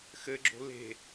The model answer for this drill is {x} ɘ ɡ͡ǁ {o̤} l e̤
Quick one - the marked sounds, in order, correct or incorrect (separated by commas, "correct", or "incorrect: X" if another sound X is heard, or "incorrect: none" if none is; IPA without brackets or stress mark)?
correct, correct